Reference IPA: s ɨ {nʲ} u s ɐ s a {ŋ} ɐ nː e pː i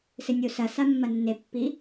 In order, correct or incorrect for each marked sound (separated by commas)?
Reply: correct, incorrect